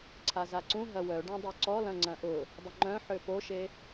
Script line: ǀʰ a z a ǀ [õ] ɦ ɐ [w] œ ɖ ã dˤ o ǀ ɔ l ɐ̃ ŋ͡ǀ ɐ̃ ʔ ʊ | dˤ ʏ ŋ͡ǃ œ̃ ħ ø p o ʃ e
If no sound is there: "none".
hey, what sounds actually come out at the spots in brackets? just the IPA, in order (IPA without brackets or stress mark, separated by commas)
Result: ũ, w